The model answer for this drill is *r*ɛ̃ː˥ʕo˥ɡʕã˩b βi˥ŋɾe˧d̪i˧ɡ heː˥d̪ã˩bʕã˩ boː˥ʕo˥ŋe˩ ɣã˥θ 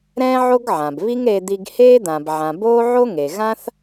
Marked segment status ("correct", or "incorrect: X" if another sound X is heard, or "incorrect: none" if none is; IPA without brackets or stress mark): incorrect: ɾ